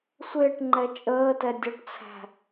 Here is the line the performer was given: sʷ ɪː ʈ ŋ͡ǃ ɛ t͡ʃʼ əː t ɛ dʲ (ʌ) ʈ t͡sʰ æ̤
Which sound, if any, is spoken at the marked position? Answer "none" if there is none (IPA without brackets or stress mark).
ʌ